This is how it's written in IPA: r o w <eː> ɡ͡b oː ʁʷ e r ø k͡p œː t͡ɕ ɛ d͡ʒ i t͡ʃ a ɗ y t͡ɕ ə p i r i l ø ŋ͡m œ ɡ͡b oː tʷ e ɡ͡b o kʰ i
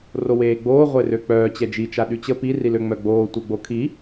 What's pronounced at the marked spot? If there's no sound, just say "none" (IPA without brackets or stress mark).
eː